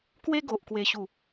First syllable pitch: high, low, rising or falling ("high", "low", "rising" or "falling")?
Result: high